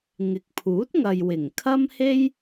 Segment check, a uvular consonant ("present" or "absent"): absent